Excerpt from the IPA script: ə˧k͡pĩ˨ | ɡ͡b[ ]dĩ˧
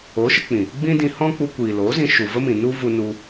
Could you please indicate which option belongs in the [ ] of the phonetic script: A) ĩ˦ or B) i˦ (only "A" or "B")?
A